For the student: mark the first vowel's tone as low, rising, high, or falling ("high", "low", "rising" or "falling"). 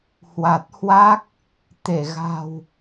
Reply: low